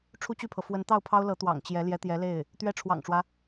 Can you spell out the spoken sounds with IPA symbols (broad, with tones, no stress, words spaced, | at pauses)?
ʈ͡ʂʰu˥˧t͡ɕy˥˩pʰɤ˩fwə˧˥n t̪ɑ˥˩ʊ̯pʰɑ˥ʊ̯lɤ˧˥ t̪wɑ̰˨˩ŋt͡ɕjɛ˧˥ ljɛ˧˥t̪jɛ˧˥le˥˩ɪ̯ | t̪ɥɛ˧˥ ʈ͡ʂʰwɑ̰˨˩ŋʈ͡ʂwä˦